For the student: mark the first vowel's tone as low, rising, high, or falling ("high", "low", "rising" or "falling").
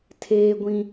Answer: high